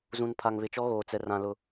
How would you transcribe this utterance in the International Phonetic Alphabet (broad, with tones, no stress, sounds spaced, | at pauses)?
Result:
z ũ˨ n pʰ a˨ ŋ β ɪ˨ t͡ʃ ɔ˦ ɣ oː˨ t͡s ɛ˨ r ã˨ l ʊ˨